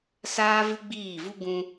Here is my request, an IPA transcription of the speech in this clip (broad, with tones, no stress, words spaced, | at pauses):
saː˦vɨ˦ɡ͡biː˦˨vu˦ ɡũ˧